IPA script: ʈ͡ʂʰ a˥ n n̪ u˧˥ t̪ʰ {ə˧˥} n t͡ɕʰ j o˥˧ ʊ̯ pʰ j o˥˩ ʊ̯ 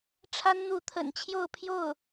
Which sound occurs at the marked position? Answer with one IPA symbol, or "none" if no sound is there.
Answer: ə̰˨˩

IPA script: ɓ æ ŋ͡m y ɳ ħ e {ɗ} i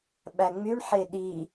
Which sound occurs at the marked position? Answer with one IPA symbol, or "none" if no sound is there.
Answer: ɗ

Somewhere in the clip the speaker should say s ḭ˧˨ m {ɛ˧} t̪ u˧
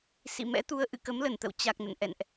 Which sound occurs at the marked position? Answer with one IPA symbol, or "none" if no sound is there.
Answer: ɛ̰˧˥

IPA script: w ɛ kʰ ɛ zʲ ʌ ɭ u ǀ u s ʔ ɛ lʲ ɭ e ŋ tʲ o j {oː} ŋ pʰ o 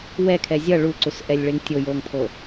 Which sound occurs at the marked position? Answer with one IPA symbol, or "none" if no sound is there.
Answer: oː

